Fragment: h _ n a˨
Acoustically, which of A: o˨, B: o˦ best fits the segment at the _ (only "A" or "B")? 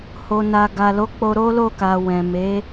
A